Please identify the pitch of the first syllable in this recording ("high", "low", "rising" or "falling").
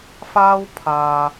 high